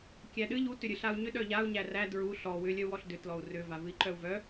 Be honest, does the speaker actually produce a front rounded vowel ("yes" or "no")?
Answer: yes